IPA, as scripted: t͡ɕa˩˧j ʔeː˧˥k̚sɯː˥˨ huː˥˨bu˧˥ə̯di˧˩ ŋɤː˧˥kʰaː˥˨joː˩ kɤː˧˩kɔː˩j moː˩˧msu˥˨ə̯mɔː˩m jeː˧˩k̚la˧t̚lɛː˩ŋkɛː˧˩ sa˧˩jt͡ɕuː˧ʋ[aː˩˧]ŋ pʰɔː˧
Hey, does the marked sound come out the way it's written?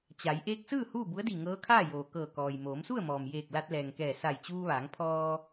yes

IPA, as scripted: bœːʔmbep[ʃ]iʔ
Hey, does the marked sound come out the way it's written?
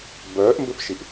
yes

